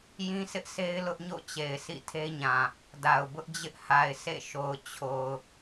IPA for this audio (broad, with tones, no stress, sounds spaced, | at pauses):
j ĩ˦ s ɪ˦ ʔ s e˦ ɪ̯ l ʊ˦ ʔ ɲ o̰˦˨ t͡ɕ e˨ ɪ̯ s ḭ˦˨ tʰ e˦ ɲ ã˨ | d a˨ ʊ̯ b ʊ˦ ʔ d͡ʑ ɪ˦ ʔ h a˨ ɪ̯ s ḛ˦˨ ʃ o˨ ʊ̯ t͡ɕʰ o˨ ʊ̯